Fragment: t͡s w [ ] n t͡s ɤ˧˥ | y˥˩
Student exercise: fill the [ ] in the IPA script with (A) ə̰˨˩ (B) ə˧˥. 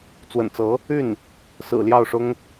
A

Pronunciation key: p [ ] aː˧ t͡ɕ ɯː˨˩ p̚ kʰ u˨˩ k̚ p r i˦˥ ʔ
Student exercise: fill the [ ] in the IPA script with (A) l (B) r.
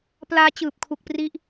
A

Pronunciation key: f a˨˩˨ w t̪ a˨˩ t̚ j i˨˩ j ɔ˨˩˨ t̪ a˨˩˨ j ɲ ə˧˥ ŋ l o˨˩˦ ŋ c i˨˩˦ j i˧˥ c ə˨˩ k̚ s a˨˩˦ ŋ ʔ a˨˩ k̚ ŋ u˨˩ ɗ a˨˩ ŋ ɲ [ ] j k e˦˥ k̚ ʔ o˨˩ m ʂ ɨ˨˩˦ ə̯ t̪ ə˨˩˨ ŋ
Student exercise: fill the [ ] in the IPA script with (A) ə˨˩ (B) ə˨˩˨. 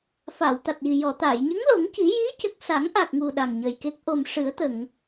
A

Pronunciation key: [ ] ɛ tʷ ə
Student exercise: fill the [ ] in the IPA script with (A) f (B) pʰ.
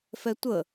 A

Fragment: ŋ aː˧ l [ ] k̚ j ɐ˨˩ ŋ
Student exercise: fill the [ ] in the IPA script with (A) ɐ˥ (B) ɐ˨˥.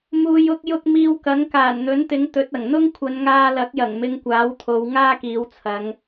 B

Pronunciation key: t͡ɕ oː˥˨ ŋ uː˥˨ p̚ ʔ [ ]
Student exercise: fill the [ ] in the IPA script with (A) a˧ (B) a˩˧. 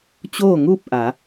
B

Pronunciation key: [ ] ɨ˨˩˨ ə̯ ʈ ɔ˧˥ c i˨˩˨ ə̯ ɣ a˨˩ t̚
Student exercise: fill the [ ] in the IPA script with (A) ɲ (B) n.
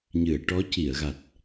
A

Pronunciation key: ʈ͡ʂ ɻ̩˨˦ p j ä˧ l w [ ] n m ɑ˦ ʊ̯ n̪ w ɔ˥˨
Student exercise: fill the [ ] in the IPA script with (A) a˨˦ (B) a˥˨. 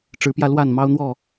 B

